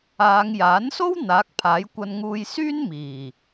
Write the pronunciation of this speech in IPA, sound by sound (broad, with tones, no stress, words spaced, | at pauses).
aː˨˧ŋjaː˨˥nso˥w n̪aː˨˥k̚pʰaː˨˥jkʷɐ˧nŋuː˧j syː˥nmiː˨˩